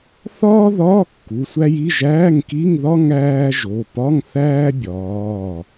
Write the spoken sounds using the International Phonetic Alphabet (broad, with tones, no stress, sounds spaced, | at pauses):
θ ɒː˥ ð ɒː˧˥˧ kː u˩˧˩ sʷ æ˥ j i˧˥˧ ʒ æː˧˥˧ ŋ k i˧˥˧ ŋ ð ɒ˥ ŋ æː˥ ʒ o˩˧˩ p ɒ˧˥˧ ŋ θ æː˥ bʲ ɒː˩˧˩